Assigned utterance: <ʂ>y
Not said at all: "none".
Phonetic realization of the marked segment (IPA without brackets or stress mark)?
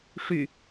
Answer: ʂ